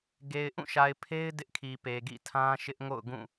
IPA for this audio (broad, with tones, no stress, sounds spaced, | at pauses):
ɡ e˨ ɪ̯ ʔ ũ˦˨ ʃ a˨ ɪ̯ pʰ e˦ ɪ̯ d ɪ˦ ʔ kʰ i˨ p e˨ ɡ ḭ˦˨ tʰ ã˦ ʃ ɪ˦ ʔ ŋ o̰˦˨ ʊ̯ ɡ ũ˦˨